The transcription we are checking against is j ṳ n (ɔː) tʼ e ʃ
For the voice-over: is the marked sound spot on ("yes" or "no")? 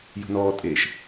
yes